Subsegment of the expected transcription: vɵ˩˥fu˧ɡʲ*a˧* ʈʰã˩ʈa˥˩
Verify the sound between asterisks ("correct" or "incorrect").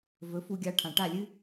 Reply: correct